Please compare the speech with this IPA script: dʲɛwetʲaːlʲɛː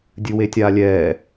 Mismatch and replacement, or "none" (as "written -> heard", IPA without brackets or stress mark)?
ɛ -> ɨ